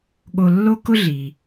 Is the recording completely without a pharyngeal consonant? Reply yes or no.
yes